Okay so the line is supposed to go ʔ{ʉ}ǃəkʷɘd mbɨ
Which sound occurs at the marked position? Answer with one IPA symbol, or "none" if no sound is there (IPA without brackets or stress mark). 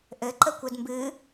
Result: ɘ